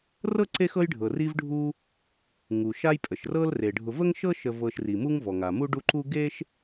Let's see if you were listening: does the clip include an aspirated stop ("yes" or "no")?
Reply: no